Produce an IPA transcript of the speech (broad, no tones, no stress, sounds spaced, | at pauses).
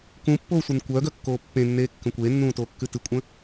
k ũ pː oː sʷ e n kʷ œ ɡ œ kː oː pː ẽ nː eː kː ə̃ kʷ eː nː ũː t oː kː ʉ t ɨ kʷʼ ə̃